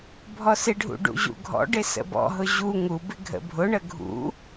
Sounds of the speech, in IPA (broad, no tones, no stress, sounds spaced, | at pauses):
bʱ ɔ s ɪ ɖʱ ṵ ɖ ṵ ʑ ṵ ɡʱ ɔ̰ ɖ ɪ s ə̰ b ɔ̰ ɦ ʊ ʑ u ŋ u b ɪ ɡʱ ə̰ bʱ ʊ ɳ ə ɡʱ ṵ